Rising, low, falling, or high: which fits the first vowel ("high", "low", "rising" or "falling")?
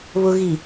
low